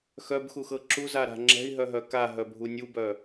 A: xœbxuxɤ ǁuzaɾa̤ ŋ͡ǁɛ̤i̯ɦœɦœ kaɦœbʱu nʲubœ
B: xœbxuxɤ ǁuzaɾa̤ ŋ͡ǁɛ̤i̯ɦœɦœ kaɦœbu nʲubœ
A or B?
A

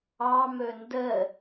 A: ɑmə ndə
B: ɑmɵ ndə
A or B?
B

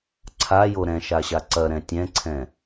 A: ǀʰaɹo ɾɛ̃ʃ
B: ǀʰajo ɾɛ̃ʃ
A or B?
B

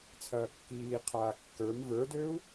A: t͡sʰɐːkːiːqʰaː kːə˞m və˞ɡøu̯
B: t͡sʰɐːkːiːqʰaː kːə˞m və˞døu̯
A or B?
B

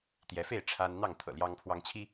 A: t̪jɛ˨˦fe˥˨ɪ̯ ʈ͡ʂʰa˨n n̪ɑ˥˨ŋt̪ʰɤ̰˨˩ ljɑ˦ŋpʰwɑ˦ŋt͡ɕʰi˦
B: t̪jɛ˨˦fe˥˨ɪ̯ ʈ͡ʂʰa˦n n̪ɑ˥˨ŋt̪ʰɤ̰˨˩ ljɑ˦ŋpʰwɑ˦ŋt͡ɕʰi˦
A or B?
B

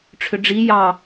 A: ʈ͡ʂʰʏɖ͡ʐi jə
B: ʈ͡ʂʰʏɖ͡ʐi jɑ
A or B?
B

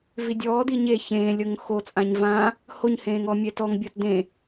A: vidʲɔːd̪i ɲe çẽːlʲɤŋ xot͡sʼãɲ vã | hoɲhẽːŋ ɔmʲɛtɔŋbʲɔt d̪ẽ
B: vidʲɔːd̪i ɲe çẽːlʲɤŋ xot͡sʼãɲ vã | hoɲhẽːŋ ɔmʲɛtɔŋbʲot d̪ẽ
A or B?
A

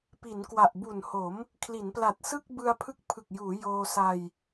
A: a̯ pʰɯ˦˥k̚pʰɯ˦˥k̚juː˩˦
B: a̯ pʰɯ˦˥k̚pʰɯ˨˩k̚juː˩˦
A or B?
B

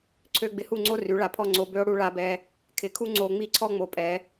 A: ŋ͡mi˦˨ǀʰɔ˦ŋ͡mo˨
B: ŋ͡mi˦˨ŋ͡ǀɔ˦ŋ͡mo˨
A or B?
A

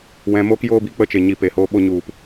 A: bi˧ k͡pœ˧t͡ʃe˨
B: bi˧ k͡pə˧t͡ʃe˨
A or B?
B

